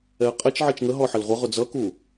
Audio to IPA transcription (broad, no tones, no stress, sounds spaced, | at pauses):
ɛ ə̯ qʼ ɛ t͡ʃ ʕ i t͡ʃ ŋ ə ɦ ɔ ħ ə l ʁʷ ʌ ʁ ʊ d͡z ʌ k u